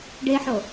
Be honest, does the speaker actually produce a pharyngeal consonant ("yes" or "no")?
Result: yes